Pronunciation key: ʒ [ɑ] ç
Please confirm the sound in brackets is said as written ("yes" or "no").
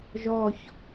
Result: no